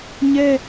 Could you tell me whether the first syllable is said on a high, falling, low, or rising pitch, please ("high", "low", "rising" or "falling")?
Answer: high